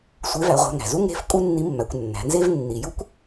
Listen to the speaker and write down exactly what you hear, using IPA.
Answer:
sʷ e˧˥ v æ˩˧ ʁʷ æ̤˧ ŋ æ̤˩ z u˥ ŋ e̤˧˥ f kʼ u˥ nː i˧˥ mː æ˩˧ kʷ nː æ̤˩˧ n z e˥ v nː i˩ j u˥ kʷ

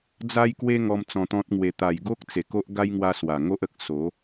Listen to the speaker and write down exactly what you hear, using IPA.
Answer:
d͡z a˦ j k w e˦ ŋ ɔ˧ m t͡s ɔ̃˧ t̪ ɔ̃˦ t̚ ŋ w e˧ t̪ a˨˩ j ɡ o˦ k̚ t͡s e˨˩ k o˦ ʔ ɡ a˦ j ŋ w a˧ s w a˨˩ ŋ o˦ ʔ ə˨ k̚ s o˨˦

